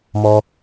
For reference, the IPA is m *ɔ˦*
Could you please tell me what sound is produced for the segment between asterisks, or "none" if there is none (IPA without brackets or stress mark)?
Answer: ɔ˦